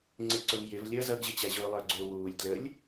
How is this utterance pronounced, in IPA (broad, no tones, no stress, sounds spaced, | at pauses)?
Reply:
ŋ͡ǀ i ǀ ʊ v j ɪ v lʲ ʌ z ʌ ɡ ʑ ɪ t͡ɕ æ ʑ ʊː lˠ ə˞ ɡ͡ǀ ʊː w uː lʲ d l ə lʲ